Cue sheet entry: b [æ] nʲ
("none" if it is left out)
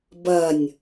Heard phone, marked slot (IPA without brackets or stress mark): ɐ